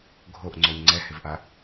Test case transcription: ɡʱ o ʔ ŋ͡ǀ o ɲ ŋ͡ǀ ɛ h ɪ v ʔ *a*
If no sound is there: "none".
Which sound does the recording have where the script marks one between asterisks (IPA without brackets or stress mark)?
a